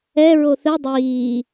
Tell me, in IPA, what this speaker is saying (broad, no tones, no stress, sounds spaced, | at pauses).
ɛ ɹ o θ ɘ dˤ iː